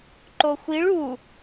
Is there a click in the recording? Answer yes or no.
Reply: yes